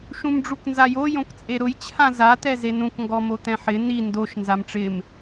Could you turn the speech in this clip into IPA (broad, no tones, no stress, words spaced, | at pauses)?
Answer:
ʃũmɖ͡ʐuknzajo jõkt͡sʼeɾʊj t͡ɕʰãza t̪ɛzenũk ŋɡɔmot̪ɛ̃ħɪ ni ndoʃ nzamʈ͡ʂɪm